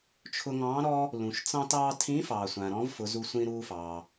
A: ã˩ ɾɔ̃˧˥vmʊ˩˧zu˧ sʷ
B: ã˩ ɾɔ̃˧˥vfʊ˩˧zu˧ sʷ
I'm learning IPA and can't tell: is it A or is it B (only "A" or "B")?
B